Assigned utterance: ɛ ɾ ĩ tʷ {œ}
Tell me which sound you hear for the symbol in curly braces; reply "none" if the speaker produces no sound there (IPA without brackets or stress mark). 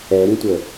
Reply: ə